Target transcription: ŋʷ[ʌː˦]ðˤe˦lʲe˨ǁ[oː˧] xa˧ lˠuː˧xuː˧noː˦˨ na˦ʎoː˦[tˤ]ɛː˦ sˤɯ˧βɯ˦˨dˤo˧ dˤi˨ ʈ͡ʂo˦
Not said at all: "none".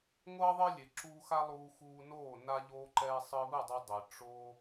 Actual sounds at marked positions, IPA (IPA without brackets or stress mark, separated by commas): ʌː˦, uː˧, ǃ